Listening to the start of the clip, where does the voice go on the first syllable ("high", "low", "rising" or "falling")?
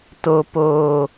high